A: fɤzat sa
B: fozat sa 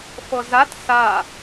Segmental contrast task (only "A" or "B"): A